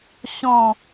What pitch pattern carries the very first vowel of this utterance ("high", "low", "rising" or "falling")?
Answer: falling